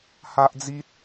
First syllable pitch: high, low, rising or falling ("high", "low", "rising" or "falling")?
high